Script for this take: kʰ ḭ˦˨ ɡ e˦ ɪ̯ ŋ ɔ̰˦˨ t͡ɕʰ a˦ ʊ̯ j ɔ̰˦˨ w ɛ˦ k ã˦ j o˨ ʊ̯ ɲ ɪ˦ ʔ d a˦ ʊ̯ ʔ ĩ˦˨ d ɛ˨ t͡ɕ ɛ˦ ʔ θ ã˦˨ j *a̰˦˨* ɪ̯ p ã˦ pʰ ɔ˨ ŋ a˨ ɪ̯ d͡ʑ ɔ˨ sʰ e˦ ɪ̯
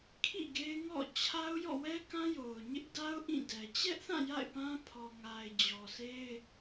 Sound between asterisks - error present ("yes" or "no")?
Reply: no